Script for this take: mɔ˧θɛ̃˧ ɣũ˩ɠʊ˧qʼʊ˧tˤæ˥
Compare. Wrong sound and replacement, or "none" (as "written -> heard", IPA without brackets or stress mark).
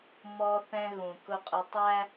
ɠ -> k